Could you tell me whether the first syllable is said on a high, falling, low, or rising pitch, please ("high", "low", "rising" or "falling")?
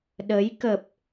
rising